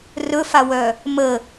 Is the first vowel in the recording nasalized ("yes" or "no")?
no